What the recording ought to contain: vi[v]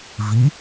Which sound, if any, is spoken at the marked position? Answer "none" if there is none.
none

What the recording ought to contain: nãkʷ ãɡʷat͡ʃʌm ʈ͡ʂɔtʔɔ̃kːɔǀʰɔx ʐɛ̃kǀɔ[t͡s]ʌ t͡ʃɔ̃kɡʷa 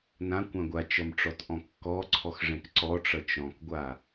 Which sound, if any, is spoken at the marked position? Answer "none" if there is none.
ʈ͡ʂ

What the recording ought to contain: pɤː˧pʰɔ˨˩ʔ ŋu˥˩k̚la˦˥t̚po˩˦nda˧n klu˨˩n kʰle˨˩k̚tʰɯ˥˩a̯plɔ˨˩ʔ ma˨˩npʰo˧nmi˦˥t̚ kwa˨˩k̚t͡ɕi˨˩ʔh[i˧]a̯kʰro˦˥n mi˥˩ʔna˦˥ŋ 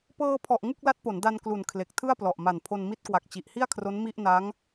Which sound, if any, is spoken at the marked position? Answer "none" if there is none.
i˥˩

